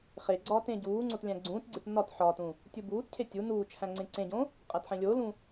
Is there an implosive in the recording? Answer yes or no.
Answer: no